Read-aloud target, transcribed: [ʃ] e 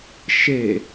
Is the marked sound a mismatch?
no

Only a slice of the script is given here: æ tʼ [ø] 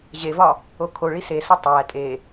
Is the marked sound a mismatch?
yes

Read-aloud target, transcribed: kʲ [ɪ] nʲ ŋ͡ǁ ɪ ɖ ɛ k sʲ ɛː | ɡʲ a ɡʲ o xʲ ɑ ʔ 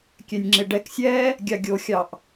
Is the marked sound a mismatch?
yes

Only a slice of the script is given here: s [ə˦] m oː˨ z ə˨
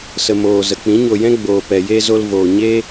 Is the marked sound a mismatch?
yes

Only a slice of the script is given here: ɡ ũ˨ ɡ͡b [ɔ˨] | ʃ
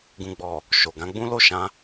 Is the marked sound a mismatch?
no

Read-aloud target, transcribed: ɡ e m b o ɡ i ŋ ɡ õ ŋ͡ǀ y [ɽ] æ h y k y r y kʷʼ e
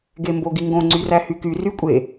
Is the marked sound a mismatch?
yes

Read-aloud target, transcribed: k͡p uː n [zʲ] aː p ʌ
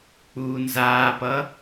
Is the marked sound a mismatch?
yes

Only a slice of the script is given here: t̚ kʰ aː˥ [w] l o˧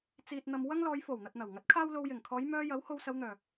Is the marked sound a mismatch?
no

